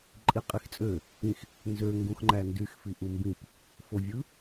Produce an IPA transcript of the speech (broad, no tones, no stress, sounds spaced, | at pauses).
ǃʼ i qʼ i x t͡sʼ ø | ĩ x | n z ø ŋ ɡ ũ x ŋ͡ǃ æ n d y x f i ʔ u m b ĩ p | f o vʲ ɯ